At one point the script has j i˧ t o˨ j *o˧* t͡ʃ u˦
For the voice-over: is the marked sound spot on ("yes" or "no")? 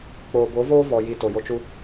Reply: no